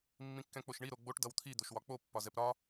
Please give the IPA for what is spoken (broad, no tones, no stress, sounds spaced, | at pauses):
mː ĩ kː ɛ̃ k͡p o ʃ ɳ i ɾ o ɡ͡b o ʈ d ʌ w t̪ʰ i d̪ o ʃ w ɒ k͡p o pː ɒ z ɛ p ɾ ɒ